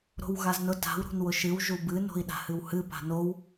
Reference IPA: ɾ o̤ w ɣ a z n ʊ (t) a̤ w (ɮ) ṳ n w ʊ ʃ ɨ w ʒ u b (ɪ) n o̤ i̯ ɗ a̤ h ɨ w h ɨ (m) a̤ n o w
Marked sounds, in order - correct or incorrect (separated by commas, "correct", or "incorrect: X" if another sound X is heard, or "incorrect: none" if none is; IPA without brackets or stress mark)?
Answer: correct, incorrect: ɾ, incorrect: ɨ, incorrect: p